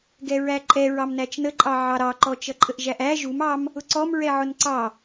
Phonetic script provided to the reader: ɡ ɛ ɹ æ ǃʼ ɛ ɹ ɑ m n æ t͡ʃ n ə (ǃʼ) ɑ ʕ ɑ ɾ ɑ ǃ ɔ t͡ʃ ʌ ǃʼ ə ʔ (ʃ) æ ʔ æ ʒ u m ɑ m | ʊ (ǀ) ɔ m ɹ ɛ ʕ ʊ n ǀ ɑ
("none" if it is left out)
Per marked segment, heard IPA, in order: ǃʼ, ʒ, ǀ

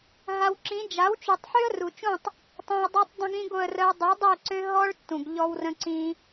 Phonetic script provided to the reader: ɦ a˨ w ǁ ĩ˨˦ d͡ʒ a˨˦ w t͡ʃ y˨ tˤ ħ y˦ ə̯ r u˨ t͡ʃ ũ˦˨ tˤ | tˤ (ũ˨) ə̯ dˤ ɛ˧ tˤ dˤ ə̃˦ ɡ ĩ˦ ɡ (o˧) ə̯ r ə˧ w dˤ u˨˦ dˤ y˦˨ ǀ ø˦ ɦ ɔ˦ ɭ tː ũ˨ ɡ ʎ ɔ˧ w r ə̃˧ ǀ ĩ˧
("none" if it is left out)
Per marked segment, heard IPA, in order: ũ˨, o˧

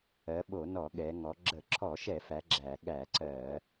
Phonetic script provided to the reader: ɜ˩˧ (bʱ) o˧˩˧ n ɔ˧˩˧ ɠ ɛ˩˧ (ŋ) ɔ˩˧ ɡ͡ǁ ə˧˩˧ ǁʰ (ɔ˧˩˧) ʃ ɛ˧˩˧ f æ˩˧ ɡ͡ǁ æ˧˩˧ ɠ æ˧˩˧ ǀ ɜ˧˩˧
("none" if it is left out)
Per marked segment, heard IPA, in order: ɓ, ŋ, ɔ˧˩˧

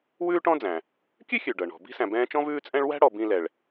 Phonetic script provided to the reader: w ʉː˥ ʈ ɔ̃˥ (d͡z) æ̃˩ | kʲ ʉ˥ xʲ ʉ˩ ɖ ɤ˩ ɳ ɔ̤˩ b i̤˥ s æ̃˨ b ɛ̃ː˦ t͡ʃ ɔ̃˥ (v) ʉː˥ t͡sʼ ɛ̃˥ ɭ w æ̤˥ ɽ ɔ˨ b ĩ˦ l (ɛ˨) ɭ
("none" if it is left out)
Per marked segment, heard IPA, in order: d͡z, v, ɛ˨

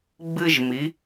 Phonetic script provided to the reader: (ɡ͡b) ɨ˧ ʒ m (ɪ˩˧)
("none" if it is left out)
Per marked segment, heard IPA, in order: ɡ͡b, i˩˧

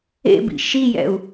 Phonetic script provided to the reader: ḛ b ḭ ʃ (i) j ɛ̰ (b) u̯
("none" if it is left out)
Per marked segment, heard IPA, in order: i, none

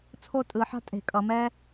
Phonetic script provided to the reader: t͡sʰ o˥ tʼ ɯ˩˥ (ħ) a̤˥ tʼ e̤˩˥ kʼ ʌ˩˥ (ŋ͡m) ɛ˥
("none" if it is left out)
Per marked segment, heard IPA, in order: ħ, m

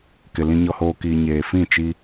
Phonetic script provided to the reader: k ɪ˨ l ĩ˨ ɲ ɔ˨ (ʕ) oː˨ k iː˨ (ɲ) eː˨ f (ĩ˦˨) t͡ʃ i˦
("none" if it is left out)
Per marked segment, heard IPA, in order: h, ɲ, ĩ˦˨

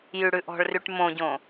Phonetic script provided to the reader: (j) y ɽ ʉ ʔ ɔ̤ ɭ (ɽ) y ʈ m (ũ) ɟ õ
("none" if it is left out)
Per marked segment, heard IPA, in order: j, r, õ

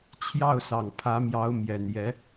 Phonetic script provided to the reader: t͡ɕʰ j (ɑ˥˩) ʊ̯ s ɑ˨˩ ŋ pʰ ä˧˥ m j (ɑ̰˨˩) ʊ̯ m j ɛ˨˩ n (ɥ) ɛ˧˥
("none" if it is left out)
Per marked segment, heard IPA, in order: ɑ˥˩, ɑ˧˥, j

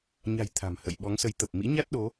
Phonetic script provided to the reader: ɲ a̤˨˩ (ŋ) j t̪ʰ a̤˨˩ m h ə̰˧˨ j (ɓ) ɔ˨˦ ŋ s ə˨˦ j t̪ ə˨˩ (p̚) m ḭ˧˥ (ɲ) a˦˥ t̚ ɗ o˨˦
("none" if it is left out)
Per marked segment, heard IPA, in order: none, ɓ, p̚, ɲ

